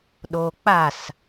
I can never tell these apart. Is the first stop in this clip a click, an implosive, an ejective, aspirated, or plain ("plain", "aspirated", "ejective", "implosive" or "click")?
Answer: implosive